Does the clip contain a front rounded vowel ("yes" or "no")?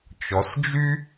yes